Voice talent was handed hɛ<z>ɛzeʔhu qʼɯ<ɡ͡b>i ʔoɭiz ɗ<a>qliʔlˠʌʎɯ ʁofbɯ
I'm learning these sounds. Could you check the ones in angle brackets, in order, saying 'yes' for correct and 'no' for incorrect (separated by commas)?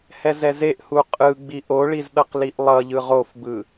yes, yes, no